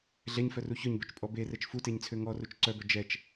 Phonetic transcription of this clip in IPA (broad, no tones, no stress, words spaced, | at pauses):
ɮɛɲfœru çœɲbœt͡ʃpʼɔ berɛt͡ʃ futeɲt͡sʰø ŋɔrut͡ʃ ǀœbœ d͡ʒɛt͡ʃ